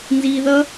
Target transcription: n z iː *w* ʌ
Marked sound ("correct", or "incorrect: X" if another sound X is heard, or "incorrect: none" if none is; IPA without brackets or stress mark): incorrect: ð